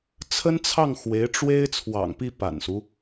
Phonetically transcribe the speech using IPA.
t͡sʰə˥nt͡sʰɑ˥˩ŋ xwe˧˥ɪ̯ʈ͡ʂwe˥ɪ̯ t͡sʰwɑ̰˨˩ŋpi˥˩ pa̰˨˩nsu˦

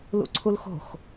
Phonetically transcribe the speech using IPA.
lṵǀʰulxo̤x

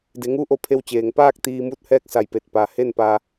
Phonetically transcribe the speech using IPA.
de˩˧ŋuː˧˥ʔo˧˩ pʰe˧wt͡ɕeː˩ŋ paː˥˨k̚ t̪iː˧muː˥˨t̚hɛː˥˨k̚ sa˧˩jpe˧˩t̚ pa˩he˥˨npa˧

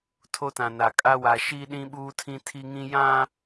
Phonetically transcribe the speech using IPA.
tʰo˦tã˨na˨ kʼa˦wa˨ ʃiː˦ɗĩ˦ ɓuː˦tʰĩ˦ tʰi˦ŋĩ˦ jã˦

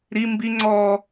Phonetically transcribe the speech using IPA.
ɾi mbiŋ͡ǀɔː

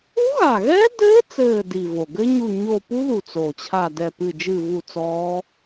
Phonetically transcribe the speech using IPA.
u˦˥ɣa˨˩ɣɛ˦˥dɘː˦˥ t͡sɘː˦˨di˨˩ vo˨˩ ɡɘ˦˥ɲu˦˨ɲo˦˨ pu˦˥ðu˨˩ t͡so˨˩t͡ɕʰa˦˨dɛ˦˨pɨ˦˨ d͡ʒɨ˦˨vu˦˨t͡sɔː˦˥

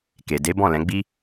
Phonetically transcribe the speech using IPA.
ke˨ de˨˦bɔ̃˦˨lɛ̃˨˦ ɡ͡bi˦

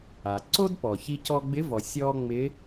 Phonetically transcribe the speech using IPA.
a˩ǀo˥dpɔ˩ çi˧cɔ˧ ɡ͡bɪ˧˥vɔ˩ sʲɔ˧ ŋ͡mɪ˧˥

